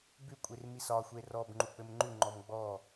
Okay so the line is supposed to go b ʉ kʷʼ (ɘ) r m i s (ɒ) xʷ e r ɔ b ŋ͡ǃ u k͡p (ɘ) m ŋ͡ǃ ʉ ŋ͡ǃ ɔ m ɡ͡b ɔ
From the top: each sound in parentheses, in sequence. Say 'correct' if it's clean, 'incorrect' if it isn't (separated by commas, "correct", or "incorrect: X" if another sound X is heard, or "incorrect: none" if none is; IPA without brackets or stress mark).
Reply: incorrect: e, correct, correct